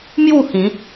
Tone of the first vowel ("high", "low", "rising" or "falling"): falling